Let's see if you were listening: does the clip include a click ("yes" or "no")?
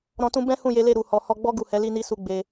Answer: no